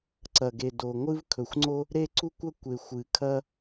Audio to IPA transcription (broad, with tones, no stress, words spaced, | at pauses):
ǀɐ˩ɡe˩ do˩ ŋʷɨ˥vkʰɵ˩xʷŋ͡ǀo˥ | ɾe˥ǀu˥kʷɐ˥kʷe˩ xʷɨ˩kʰɐ˥